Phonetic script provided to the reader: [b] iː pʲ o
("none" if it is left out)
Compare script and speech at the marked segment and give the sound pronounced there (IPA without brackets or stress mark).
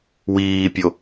w